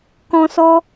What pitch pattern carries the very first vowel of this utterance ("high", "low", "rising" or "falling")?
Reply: high